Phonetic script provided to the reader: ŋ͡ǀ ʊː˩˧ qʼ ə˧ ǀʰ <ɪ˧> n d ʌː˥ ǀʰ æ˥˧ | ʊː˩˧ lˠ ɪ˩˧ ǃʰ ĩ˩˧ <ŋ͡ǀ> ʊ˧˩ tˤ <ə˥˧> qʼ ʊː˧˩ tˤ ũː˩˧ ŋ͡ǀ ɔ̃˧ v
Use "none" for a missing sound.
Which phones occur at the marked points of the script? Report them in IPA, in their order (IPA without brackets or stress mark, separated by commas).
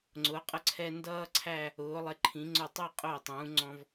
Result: ɛ˧, ŋ͡ǀ, æ˥˧